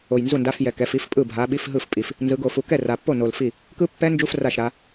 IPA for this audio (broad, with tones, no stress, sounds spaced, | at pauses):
o˨˩ j n z u˥˩ n d a˧˥˧ f j ɛ˨˩ k ɛ˧˥˧ f i˧˥˧ f pʼ ɯ˥˩ bʱ a˨˦ ɓ i˧˥˧ f ɦ ɯ˥˩ f pʼ i˨˩ f | n z ɯ˨˦ ɡ o˨˩ f u˨˦ k ɛ˥˩ r a˨˩ pː o˥˩ n o˨˩ l f i˥˩ | k ɯ˦˥ pː ɛ˦˥ n d͡ʒ u˧˥˧ f r a˥˩ ʃ ɾ a˨˦